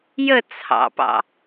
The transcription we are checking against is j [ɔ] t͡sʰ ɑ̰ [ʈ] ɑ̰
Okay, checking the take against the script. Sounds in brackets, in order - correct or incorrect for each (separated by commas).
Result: incorrect, incorrect